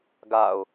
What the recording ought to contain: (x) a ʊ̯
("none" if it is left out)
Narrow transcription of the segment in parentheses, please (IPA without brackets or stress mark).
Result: ɡ